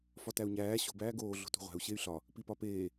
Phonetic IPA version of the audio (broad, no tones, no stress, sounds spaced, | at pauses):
f ɒ t æ u̯ ɲ æː ɕ o̤ b æː ɡ oː ɮ o̤ t ṳ ʁʷ æ̤ u̯ ɕ e y̯ ɬ ɒ | p i p ɒ p eː